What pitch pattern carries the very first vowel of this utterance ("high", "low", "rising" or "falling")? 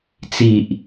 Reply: low